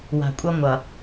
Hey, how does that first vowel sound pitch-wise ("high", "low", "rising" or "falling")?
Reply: low